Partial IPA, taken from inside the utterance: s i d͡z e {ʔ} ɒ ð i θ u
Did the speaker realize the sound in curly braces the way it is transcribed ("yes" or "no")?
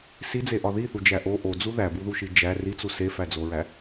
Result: yes